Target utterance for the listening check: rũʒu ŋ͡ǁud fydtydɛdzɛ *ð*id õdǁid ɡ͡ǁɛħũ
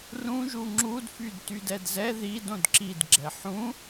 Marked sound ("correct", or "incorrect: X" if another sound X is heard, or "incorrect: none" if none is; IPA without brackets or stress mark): correct